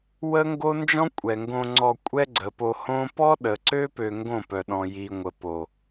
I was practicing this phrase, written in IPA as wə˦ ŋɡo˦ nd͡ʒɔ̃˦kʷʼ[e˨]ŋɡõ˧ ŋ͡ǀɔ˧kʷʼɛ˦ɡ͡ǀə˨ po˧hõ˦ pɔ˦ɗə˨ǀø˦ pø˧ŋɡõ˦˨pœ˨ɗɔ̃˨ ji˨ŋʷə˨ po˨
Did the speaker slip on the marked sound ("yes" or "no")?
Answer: yes